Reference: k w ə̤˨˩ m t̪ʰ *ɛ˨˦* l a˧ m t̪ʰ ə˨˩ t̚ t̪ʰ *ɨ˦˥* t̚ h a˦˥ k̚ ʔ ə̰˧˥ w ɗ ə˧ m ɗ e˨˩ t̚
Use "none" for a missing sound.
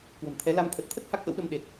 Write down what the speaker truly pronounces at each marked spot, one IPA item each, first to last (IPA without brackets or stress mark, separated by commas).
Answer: ɛ˨˦, ə˦˥